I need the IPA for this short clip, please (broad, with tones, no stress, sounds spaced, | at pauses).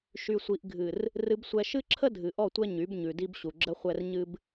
ʃ y˨ sʷ i˨ ʔ ɡʱ ɨ˨ r | r ɨ˨ b sʷ ɛ˨ ʃ ɨ˦ ǁʰ ə˦ dʱ ɨ˨ ʔ ɔ˦˨ tʷ ɛ˦ ɲ y˨˦ b ɲ ʉ˨ d i˦ b ɕ u˨ ɡ͡ǁ ə˦ χʷ ɛ˦ r ɲ ɨ˦ b